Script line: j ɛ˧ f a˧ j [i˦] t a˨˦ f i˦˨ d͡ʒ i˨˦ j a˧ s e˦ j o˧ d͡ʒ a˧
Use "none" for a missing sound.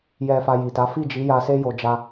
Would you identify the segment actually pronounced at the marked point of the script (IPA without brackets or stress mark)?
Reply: i˨